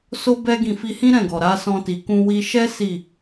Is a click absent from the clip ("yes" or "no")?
yes